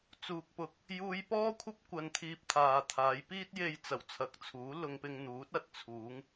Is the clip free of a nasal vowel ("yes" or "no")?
yes